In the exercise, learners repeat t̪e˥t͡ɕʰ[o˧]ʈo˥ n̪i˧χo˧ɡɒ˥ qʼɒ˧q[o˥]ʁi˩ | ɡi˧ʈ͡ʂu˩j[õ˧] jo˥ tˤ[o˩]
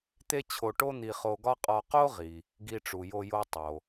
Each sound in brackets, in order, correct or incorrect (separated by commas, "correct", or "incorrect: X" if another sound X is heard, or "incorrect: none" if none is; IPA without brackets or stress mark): correct, correct, incorrect: o˧, correct